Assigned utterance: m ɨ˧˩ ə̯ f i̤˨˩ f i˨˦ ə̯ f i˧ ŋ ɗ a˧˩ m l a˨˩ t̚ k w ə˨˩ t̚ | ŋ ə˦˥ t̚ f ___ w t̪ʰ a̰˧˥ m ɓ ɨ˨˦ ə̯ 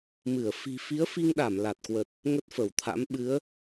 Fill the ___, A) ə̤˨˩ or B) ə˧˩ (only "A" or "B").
B